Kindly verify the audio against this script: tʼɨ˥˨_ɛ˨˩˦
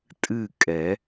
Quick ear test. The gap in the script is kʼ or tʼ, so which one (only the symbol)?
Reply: kʼ